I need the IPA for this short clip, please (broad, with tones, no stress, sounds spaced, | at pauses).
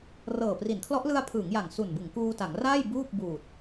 r ɤː˨˩ p r i˩˦ n kʰ l ɔ˦˥ ʔ l ɯ˧ a̯ pʰ ɯː˩˦ ŋ j a˨˩ ŋ s u˨˩ n b ɯ˩˦ ŋ k uː˧ t a˩˦ ŋ r aː˥˩ j b uː˥˩ p̚ b uː˨˩ t̚